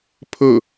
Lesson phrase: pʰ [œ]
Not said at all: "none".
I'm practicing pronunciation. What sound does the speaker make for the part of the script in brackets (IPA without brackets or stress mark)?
ɵ